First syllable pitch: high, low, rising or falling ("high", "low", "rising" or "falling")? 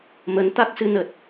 rising